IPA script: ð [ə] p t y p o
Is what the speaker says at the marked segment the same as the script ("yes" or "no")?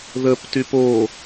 yes